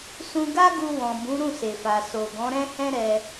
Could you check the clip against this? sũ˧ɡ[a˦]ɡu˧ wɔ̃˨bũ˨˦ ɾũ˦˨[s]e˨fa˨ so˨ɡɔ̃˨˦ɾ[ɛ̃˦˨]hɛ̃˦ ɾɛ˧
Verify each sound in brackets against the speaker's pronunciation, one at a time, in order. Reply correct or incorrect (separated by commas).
correct, correct, incorrect